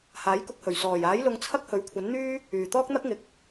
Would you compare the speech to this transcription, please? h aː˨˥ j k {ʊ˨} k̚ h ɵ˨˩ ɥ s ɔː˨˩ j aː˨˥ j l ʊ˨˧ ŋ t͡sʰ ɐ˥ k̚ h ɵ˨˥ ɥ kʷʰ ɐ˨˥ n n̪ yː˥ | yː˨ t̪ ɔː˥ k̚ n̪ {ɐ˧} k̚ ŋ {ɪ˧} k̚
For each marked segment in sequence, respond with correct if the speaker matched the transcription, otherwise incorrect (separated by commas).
incorrect, incorrect, incorrect